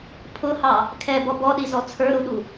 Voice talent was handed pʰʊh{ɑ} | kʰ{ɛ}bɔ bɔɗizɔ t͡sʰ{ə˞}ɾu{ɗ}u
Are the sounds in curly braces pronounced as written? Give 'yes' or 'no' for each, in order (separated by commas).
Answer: yes, yes, yes, yes